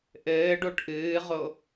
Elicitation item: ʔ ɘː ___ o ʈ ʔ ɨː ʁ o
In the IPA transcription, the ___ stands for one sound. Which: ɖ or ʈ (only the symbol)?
ɖ